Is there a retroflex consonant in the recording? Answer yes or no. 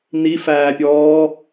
no